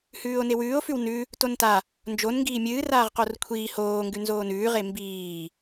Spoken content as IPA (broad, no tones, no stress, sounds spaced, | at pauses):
h ʉː o̯ n e w ʉː o̯ f ʉ w n ʉ | t o n t a | n d͡ʒ o n ŋ ɡ iː mʲ ɨː r aː ʁ q o r kʷʰ iː h oː ŋ ɡ ʉ n z oː n ʉː ʁ e m b iː